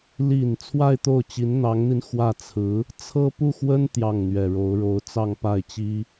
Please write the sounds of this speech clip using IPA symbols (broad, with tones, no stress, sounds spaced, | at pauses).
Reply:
l i˨˩ n t͡sʰ w a˥˧ ɪ̯ t̪ o˥˩ ʊ̯ t͡ɕ i˧˥ n n̪ ɑ˧˥ ŋ n̪ i˧ n x w ä˥˩ t͡sʰ ɹ̩˧˥ | t͡sʰ ɤ˥ p u˥˩ x w ə˥ n t̪ j ɑ˥˩ ŋ n̪ ɥ ɛ˨˩ ɻ o˧˥ ʊ̯ ɻ o˧˥ ʊ̯ t͡s ɑ˥˧ ŋ p a˥˩ ɪ̯ t͡ɕ i˥